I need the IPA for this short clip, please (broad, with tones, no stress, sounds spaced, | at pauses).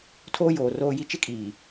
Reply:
tʰ oː˦ j oː˨ r oː˦ j i˦ t͡ʃ ɪ˦ kʼ iː˨